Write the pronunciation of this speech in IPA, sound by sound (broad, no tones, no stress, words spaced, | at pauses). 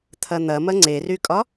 t̪ʰɐn̪ɐ mɐŋ͡ǀerykʼɒ